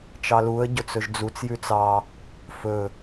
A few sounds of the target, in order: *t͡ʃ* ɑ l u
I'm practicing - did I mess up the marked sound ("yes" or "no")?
no